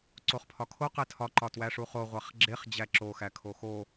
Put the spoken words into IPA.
ǀ o χ pʰ ɒ kʰ o q e tʰ ɒ ǃ ɒ t w æ ʂ u χ o ʁʷ æ χ ɡ͡ǁ e χ d͡ʑ æ ǁ o x æ kʰ o x o

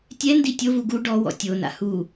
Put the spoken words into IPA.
tʲ ɛ n d i tʲ o v u ɡ u ɖ ɔ w ɔ̰ tʲ o n a̰ h u

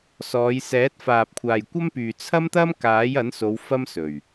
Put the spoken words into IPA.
s ɔː˨˧ j s ɛː˨˥ t̚ f aː˨ p̚ kʷʰ aː˨ j kʷ ɐ˥ m p yː˨ t͡sʰ ɐ˥ m t̪ ɐ˥ m k aː˨˥ j ɐ˨˥ n s o˨˧ w f ɐ˥ m s ɵ˨˩ ɥ

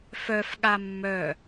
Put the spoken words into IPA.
f œ f ɠ a mː œ

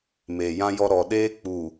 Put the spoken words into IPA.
m eː˨ j ã˦ j ɔ˦ ɾ ɔ˨ ɗ eː˦ k͡p u˨

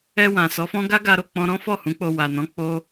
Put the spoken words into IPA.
ɛ˧ w ã˨ s ɔ˨˦ f ɔ̃˦ ɡ a˦ ɡ a˧ ɾ o˨ k͡p ɔ̃˧ ɾ ɔ̃˦ f ɔ˦˨ h ũ˨˦ k͡p o˧ w a˨ n ɔ̃˨˦ k͡p o˦

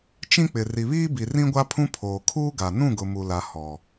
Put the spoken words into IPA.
t͡ʃ ĩ˦ k͡p ɪ˨ r i˨ β iː˦ b i˨ r ĩ˦ ɡʷ a˦ pʰ ũ˦ pʰ oː˨ kʰ uː˦ ɡ a˨ n ũ˦˨ ɡ ʊ˨ m u˨ l a˨ h ɔ˨

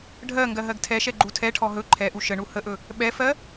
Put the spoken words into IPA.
ɖʱ ɜ ŋ ɡ ɜ ɦ ɜ ɡ tʰ ɛ ʃ ɛ ɡ͡ǃ u tʰ ɛ ʈʰ ɔ ɦ ɵ ǃʰ ɛ ʔ u ʃ ə ɳ u h ə ʔ ɵ | ɓ ɛ f ɜ

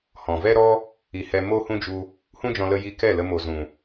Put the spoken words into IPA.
h ɔ̃˨ v ɛ˦ ɾ ɔ˦ | i˨ h ɛ˧ m o˦ h ũ˦ d͡ʒ u˧ | h ũ˦ d͡ʒ ɔ̃˧ l ə˧ j i˧ k ɛ˦˨ l ə˧ m o˨ z ũ˨

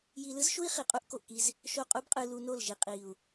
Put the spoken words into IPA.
j i˧ l ɯ˦ z ʃ u˦ i̯ χ i˨ qʼ u˦ ʔ k o˨ ʔ k i˧ z | ʃ o˦˨ qʼ u˦ b qʼ ɯ˧ l u˧ n o˦˨ l ʒ i˨ qʼ i˨ u̯

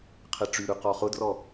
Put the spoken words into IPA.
qʰ e ʈ͡ʂ y ɾ ʉ q ɔ χ ʊ d r ɔ

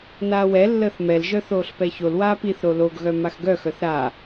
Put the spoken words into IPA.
n aː w ɛ lː əː θ m ɛ l ʒ œ θ oː ɬ p ɛ ç o l w aː p i θ ɾ o l o ɡ ɣ œ m a x ɡ œ x œ θ ɾ a

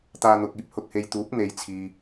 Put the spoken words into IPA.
t̪ aː˧ n̪ ʊ˨ k̚ iː˥ p̚ h ʊ˨ k̚ h e˧ j t̪ uː˨˥ p̚ n̪ e˨˧ j t͡sʰ iː˨

